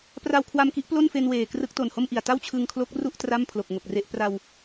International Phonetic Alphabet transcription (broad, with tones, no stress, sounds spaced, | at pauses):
p r a˧ w kʰ w a˧ m k i˦˥ ʔ p l o˥˩ n f e˧ n w eː˨˩ k r ɯ˦˥ k̚ t o˨˩ n h o˥˩ m ʔ i˨˩ a̯ t a˥˩ w t͡ɕʰ ɯ˧ ŋ kʰ l o˦˥ k̚ r u˥˩ ʔ t r a˥˩ m pʰ l o˨˩ k̚ ŋ o˨˩ k̚ r e˥˩ ʔ p r a˧ w